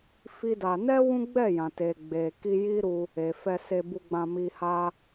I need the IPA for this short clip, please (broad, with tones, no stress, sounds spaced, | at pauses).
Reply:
f i˦ d a˧ n ɛ˦ w ũ˦ ɡ͡b ɛ˦˨ j ã˨ t e˨ ɡ͡b e˨ k i˧ j i˦ ɾ u˧ | e˨ f ɛ˧ s e˧ b u˧ ɡ͡b ã˧ m i˧ h a˦